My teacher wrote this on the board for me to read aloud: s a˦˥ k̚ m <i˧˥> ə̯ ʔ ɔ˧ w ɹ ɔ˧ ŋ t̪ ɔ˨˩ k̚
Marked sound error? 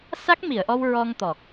yes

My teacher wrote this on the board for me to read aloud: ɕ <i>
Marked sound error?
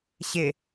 yes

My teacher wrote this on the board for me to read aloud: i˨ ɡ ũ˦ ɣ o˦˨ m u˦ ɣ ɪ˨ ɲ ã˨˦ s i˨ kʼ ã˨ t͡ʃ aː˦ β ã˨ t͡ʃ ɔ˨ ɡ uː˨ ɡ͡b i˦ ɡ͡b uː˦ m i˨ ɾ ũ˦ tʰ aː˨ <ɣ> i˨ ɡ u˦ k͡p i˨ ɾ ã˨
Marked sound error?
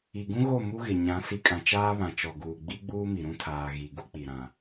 no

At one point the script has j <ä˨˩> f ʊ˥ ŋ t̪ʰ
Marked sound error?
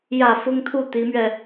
no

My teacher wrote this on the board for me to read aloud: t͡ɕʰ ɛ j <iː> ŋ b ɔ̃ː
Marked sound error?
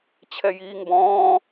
no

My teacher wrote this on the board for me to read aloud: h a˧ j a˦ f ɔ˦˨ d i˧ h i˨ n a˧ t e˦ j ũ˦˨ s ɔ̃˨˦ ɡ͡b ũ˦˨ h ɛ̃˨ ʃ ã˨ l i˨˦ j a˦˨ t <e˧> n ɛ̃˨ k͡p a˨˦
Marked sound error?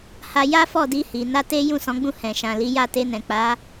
no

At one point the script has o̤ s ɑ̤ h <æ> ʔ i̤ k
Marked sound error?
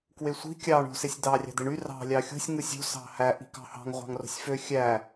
no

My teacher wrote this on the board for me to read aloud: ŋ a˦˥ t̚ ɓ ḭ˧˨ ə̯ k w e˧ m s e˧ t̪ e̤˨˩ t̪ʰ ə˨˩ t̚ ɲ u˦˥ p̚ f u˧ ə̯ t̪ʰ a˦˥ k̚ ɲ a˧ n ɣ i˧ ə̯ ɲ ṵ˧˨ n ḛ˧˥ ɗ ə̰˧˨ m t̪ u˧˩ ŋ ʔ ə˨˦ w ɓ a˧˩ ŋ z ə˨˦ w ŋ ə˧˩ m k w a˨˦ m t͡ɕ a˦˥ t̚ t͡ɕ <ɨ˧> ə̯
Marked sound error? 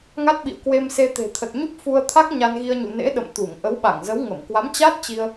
yes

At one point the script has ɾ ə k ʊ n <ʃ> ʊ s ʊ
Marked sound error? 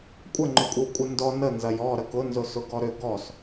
yes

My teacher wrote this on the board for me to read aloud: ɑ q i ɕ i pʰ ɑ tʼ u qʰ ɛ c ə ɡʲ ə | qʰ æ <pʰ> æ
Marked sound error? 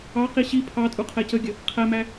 yes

